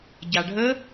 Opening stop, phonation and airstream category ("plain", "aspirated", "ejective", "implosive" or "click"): plain